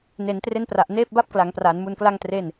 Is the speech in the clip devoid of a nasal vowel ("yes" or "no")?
yes